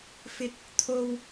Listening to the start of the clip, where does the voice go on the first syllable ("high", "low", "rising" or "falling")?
high